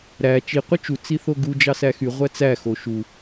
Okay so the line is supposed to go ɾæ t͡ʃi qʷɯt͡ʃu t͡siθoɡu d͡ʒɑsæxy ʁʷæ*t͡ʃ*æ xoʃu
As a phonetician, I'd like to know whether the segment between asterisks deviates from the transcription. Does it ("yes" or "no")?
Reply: yes